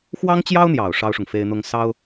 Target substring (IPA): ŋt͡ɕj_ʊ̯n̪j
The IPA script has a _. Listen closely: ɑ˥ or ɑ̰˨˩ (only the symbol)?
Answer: ɑ˥